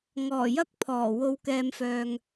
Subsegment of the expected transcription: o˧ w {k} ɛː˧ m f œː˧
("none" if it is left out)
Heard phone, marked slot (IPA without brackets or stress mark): k